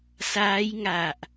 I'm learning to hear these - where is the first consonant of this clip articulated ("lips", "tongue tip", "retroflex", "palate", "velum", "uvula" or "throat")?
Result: tongue tip